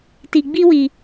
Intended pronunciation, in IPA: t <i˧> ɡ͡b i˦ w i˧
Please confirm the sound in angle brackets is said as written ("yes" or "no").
yes